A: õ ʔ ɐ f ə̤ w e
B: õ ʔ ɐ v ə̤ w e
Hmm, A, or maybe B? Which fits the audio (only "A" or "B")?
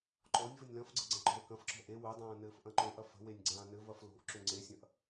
A